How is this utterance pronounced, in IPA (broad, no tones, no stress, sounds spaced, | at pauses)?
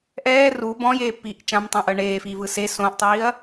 ʔ ɛː r u b ɔ̃ j eː pː iː ʔ t͡ʃ ã m tˤ ɛ̃ ʔ ɤ ɳ eː f iː v ɯ s e s õ ʔ tˤ iː ɐ̯